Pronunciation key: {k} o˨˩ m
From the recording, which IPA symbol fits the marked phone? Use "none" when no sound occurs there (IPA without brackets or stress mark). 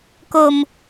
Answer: k